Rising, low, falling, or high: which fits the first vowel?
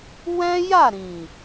high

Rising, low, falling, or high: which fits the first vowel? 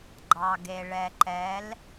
low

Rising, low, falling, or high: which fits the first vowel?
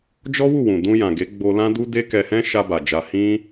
high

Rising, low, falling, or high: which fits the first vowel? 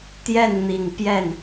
falling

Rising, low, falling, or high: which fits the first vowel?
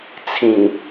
low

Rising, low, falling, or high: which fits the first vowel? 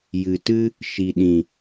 low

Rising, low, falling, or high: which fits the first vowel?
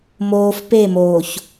low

